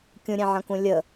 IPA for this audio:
kʲ ũ ɾʲ ẽ ʕ ɐ̃ k ũ lʲ ə

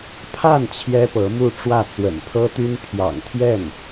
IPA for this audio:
pʰ a˥˩ n t͡ɕʰ j ɛ˥ p ɤ˧˥ m u˥˧ ʈ͡ʂ w ä˥˩ t͡s w ə̰˨˩ n pʰ ɤ˥ t̪ y˥ n pʰ j ɑ̰˨˩ ŋ t̪ʰ j ɛ˥˩ n

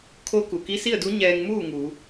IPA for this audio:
kʰ o˧˥ k u˩ k i˧˥ s i˥˨ ə̯ d u˧˥ ɲ ɛː˧ ŋ m uː˥˨ ŋ uː˩˧

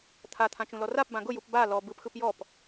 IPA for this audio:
t̪ʰ a t̪ʰ ã t͡ʃ ũ l ɔ r a p b ã ɡ ʊ j u p b a l ɔ b ɯ p x ɯ p j ɔ p

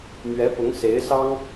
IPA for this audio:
m ɥ ɛ˧˥ p ʊ˧˥ ŋ s e˧˥ ɪ̯ s ɑ˥ ŋ

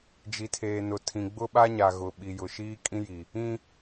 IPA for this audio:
d͡ʒ i˨ tʰ eː˨ n ʊ˨ tʰ ĩ˨ ɡ͡b ʊ˦ ɓ a˦ ɲ a˨ ɣ ʊ˨ ɓ i˨ j ʊ˨ ʃ iː˦ kʼ ĩ˦ j i˨ | ĩ˦

